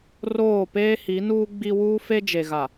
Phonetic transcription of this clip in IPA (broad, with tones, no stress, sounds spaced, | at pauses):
r oː˦˨ p eː˦ h i˨˦ n uː˦ ɡ͡b i˦ w uː˦ f e˦ d͡ʒ e˨ ɣ a˨